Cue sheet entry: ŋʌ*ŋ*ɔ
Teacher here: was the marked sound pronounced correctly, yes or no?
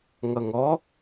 yes